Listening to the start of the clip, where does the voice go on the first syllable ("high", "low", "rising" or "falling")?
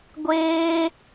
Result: high